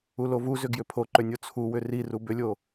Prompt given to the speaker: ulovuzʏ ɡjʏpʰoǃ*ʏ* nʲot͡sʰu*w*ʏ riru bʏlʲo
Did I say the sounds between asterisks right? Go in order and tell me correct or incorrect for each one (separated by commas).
correct, correct